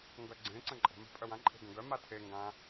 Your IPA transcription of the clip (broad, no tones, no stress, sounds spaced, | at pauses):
ŋ ɡ œ ɡ͡ǀ ẽ ǀ ə̃ ǃʼ ə̤ m e̤ pʼ œ w ã ǃʼ e̤ ɡ ə̃ ɡ œ m a tʰ e ŋ ɡ ã